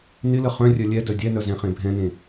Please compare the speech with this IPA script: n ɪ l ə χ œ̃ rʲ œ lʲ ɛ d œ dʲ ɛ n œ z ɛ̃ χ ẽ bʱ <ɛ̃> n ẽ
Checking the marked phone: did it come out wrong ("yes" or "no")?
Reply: no